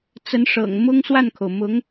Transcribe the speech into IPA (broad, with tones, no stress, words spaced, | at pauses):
t͡sə˧˥nʂɤ̰˨˩ŋmʊ˥ŋ swa˥˩nkʰo˩ʊ̯mʊ˧˥ŋ